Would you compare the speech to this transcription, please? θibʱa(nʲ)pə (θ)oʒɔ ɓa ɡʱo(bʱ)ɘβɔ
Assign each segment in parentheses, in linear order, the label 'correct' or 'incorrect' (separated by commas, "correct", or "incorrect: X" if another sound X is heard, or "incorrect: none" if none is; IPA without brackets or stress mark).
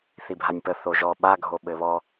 correct, correct, incorrect: ɓ